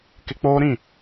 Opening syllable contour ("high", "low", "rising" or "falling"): high